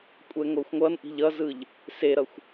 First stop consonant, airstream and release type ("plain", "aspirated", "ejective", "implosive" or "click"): ejective